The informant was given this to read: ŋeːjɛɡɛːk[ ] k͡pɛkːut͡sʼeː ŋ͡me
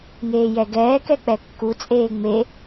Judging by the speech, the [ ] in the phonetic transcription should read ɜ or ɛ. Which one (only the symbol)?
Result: ɛ